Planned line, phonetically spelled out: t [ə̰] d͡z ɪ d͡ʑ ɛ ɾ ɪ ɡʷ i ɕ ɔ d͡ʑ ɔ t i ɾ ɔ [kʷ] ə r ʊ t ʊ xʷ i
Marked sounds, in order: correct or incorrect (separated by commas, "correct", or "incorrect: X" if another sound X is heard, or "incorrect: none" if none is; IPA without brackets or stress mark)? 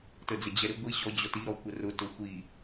incorrect: ə, correct